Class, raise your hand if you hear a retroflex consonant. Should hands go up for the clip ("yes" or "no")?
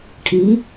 yes